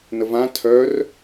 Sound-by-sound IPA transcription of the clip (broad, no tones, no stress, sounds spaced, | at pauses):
n ə v ã tʰ œ r